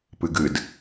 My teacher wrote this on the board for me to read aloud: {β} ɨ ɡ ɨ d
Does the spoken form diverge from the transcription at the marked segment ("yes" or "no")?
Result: yes